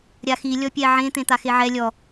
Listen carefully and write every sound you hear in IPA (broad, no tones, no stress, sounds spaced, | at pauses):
ɾʲ a x i lʲ ɔ pʲ ɛ ʕ ẽ t̪ ẽ t̪ a x e ʕ ɛ lʲ ɔ